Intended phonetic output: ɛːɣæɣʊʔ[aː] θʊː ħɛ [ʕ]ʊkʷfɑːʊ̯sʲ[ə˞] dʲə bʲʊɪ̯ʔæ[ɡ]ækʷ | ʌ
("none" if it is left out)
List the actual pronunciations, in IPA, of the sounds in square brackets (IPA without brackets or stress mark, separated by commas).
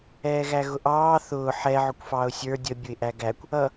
ɑː, ʕ, ə˞, ɡ